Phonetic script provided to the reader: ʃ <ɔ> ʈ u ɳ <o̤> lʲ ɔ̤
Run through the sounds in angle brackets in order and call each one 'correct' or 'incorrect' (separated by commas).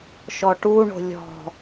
correct, correct